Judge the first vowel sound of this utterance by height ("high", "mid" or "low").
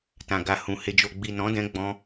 low